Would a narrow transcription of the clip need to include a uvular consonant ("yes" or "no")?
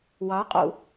yes